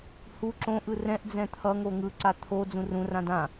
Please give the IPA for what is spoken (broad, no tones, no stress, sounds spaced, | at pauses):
h u ǁ õ ʔ ɯ r ɛ̃ ʔ d͡z ɛ̃ t̪ʰ ʌ ŋ o ŋ ɯ ǀ a t̪ʰ o d͡z ũ r ũ r ã d ã